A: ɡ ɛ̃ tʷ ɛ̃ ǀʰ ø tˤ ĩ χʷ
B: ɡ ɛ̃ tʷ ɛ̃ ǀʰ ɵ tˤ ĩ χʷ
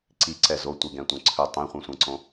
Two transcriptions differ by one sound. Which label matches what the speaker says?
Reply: B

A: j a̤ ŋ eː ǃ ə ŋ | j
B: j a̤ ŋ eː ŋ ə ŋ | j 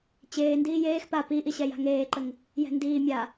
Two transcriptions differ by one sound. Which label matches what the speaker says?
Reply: A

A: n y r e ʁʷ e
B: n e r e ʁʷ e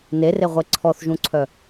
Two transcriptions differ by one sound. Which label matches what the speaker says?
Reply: B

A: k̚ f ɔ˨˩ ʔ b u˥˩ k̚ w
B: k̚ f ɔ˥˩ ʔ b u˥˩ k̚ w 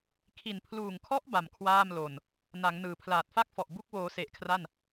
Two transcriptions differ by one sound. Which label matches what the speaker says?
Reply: A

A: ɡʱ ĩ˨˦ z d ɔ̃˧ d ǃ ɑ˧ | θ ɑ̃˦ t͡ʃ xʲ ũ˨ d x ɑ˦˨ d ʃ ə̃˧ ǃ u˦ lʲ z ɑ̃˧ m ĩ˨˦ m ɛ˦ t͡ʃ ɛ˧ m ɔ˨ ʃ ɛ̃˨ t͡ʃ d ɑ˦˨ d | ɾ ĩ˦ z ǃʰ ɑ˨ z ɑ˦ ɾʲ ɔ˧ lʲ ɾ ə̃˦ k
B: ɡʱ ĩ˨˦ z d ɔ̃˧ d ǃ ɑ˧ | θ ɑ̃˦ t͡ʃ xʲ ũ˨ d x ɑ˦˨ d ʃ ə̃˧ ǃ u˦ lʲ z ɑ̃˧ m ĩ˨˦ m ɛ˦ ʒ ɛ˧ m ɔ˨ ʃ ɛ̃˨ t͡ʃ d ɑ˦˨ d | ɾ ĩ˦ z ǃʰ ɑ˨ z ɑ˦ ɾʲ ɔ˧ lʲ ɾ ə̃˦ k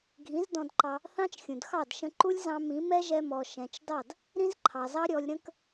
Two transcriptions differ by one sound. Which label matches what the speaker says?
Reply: B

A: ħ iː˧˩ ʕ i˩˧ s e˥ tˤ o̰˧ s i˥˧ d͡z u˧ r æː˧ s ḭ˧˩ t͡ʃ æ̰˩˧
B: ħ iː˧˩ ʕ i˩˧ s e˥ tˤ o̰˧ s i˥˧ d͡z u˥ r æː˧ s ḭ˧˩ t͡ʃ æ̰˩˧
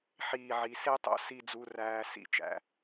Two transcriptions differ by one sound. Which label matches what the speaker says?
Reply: A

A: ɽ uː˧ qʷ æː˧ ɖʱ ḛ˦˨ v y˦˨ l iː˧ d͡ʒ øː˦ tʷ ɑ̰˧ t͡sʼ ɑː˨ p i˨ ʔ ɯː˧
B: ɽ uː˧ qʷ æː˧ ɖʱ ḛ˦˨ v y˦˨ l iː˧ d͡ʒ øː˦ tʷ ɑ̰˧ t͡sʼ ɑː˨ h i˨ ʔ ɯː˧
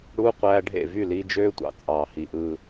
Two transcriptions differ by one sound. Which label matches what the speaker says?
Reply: B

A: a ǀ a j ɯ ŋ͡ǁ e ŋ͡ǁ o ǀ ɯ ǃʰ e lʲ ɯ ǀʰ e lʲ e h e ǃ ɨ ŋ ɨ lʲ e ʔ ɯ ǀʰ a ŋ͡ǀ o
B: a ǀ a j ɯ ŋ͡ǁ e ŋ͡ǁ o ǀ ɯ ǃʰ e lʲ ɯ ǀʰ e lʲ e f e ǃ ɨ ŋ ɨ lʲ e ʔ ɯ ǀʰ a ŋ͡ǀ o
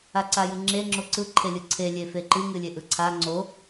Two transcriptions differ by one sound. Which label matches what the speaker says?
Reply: B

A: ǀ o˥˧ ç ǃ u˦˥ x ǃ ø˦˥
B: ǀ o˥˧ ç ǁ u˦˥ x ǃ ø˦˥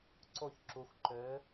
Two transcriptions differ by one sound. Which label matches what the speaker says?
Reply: B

